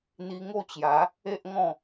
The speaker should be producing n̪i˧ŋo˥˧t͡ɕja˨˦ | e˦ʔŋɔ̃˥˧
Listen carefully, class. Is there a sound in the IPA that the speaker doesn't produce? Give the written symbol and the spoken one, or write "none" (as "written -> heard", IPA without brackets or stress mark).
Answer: none